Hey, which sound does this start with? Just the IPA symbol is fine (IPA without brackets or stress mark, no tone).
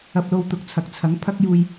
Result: ɐ